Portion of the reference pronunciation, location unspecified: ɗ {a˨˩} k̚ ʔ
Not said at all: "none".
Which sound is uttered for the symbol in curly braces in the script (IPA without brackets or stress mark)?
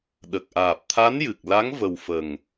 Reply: ə˨˩